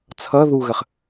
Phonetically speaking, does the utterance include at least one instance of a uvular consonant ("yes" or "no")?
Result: yes